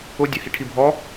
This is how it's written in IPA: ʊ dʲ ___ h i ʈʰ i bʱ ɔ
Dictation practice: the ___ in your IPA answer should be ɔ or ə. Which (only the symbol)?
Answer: ə